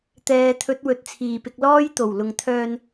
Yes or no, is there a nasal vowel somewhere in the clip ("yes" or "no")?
no